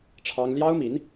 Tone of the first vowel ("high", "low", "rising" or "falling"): high